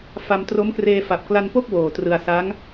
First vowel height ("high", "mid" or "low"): low